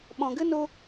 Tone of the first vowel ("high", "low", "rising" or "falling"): low